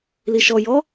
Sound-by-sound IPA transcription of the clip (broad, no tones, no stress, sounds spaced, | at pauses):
l i ʃ ɔ j ɔ